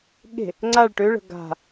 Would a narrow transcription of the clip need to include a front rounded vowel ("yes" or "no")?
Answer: yes